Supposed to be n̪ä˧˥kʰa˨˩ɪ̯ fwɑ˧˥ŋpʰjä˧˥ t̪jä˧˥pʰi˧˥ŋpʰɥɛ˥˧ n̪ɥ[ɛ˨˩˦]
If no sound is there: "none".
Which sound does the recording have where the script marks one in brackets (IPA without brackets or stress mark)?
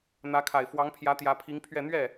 ɛ˥˩